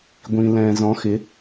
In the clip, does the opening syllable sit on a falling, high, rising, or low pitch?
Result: low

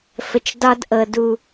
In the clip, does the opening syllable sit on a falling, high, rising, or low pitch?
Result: low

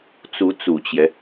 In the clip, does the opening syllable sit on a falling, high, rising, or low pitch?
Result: rising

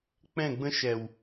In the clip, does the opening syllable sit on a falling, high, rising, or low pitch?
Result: falling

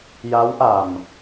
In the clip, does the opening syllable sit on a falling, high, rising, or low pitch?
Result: rising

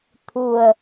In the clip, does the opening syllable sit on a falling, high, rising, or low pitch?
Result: low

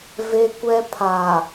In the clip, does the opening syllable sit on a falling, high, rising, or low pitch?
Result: high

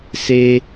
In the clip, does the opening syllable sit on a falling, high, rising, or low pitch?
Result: high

